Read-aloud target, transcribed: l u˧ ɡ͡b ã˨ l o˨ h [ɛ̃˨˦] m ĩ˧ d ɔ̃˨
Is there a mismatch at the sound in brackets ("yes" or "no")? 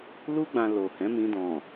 no